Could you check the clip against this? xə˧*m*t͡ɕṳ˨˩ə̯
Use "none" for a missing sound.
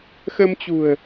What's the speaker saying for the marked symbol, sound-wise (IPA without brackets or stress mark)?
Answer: m